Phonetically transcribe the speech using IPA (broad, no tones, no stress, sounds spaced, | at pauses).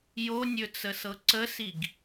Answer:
j o nʲ ɵ t͡s ə s ɤ ǀ ə s i ɡ